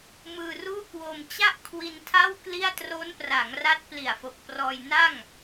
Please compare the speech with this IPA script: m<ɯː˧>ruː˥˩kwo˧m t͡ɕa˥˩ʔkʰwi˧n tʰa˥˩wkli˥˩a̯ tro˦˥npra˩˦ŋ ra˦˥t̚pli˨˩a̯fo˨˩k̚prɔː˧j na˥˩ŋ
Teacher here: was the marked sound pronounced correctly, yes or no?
yes